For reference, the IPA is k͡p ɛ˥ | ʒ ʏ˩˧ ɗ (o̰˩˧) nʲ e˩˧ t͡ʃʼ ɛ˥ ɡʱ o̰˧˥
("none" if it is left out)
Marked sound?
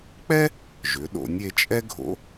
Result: o̰˩˧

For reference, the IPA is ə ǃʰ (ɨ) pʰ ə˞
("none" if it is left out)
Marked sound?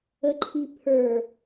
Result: i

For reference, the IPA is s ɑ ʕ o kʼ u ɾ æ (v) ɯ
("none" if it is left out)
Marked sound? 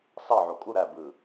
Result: b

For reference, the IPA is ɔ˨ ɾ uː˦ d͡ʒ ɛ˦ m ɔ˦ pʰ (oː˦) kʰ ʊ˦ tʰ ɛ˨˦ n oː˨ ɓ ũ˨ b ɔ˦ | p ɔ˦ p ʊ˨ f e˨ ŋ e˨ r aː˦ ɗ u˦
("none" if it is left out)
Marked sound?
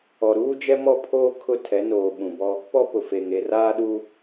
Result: oː˦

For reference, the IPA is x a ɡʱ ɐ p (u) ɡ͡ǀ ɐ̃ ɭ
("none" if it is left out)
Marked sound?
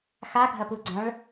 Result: u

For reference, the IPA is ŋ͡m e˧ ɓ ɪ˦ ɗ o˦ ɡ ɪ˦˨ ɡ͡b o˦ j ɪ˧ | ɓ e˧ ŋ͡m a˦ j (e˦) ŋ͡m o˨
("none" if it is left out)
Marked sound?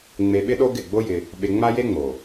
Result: e˦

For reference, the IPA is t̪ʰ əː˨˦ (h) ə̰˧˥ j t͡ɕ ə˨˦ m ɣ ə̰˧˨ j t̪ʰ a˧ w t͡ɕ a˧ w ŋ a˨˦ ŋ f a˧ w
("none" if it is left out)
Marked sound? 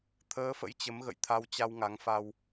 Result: f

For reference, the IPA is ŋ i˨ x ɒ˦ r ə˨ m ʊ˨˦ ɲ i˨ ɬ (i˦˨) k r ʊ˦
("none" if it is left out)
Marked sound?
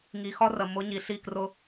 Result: i˦˨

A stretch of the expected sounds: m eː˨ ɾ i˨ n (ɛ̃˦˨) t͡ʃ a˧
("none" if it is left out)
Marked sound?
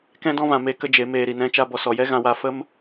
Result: ɛ̃˧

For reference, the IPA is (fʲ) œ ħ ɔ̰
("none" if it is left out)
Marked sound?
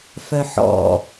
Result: f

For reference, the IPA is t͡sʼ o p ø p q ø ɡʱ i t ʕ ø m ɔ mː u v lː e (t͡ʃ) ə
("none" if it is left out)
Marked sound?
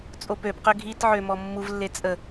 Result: t͡sʼ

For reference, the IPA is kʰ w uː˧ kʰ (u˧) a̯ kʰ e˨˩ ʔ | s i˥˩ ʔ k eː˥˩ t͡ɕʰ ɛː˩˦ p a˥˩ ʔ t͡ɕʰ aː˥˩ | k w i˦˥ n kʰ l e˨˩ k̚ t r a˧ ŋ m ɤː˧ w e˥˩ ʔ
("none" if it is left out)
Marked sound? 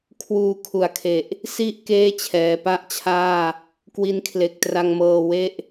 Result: u˨˩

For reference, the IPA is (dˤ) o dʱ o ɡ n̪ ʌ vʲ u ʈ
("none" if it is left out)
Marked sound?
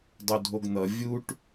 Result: dˤ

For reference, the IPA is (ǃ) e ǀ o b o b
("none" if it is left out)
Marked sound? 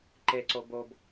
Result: ǃ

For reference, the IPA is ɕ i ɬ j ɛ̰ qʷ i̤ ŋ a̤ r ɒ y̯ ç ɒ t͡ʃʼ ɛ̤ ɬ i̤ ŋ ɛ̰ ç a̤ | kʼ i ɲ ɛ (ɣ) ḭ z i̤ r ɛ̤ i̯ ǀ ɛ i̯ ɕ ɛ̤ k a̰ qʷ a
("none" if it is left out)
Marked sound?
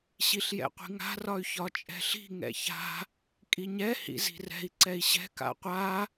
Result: h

